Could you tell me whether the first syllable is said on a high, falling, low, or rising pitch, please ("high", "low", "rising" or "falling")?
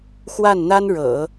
falling